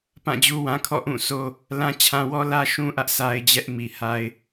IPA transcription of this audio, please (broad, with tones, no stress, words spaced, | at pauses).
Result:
pã˦˨d͡ʑu˦wã˦kʰɔ̰˦˨ ʔũ˦˨so˦ | lã˦t͡ɕʰã˦ wɔ˦lä˦ʃũ˦ʔä˦ʔ sa˦ɪ̯d͡ʑɛ˦ʔmi˨ ha˦ɪ̯